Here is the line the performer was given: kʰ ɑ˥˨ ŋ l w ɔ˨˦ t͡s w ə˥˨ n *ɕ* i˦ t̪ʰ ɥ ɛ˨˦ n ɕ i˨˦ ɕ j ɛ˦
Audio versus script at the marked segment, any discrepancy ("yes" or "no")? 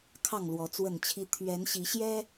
yes